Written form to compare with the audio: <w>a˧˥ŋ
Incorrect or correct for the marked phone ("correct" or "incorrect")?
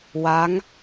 correct